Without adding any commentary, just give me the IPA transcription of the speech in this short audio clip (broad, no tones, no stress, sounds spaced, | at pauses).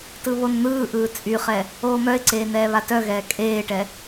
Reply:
t ɯ β o n n̪ ɯː ʔ ɯː t͡sʼ y χ ɛ | oː m œ ɪ̯ ǀ eː n ɛː β a t œ ɣ ɛː kʼ eː ʈ ɛ